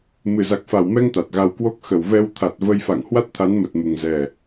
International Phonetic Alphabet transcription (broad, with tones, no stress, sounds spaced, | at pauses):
m ɨ˨˩ z a˨˩ k̚ f a˨˩ w m ɛ˧ ŋ t̪ a˨˩ t̚ ɣ a˧ w k w o˦˥ k̚ x ə˨˩ w v ɛ˧ w t̪ʰ a˨˩ t̚ v ə˧ j f a̰˧˨ ŋ h w a˦˥ t̚ t̪ʰ a˨˦ n m ə˨˩ t̚ m u˨˩ ŋ z ɛ˨˩